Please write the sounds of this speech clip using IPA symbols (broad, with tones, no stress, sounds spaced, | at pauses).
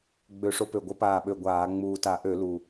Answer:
ɡ͡b ø˧˩˧ ʂ o˨˦ p ø˨˩ ɡʷ ə˨˦ p aː˨˩ ɓ ø˨˩ ɡʷ aː˧˩˧ ŋ͡m uː˨˩ t a˧˩˧ ʔ ø˧˩˧ l u˨˩